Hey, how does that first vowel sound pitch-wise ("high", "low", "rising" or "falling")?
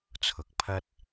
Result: low